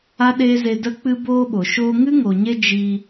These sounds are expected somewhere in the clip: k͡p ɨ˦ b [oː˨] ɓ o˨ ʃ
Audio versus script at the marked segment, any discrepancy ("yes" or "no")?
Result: yes